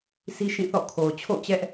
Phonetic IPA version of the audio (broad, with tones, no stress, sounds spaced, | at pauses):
sʰ i˦ ʃ ĩ˦˨ θ ɔ̰˦˨ kʰ o˨ ʊ̯ t͡ɕʰ o̰˦˨ ʊ̯ t͡ɕ ɛ˦ ʔ